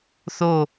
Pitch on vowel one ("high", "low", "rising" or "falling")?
falling